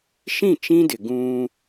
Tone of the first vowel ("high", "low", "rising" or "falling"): falling